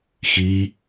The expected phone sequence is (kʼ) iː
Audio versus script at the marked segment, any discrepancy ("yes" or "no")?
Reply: yes